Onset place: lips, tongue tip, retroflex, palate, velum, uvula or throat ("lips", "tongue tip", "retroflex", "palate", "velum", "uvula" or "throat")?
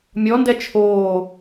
lips